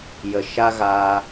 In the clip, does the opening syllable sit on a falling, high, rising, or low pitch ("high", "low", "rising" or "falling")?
low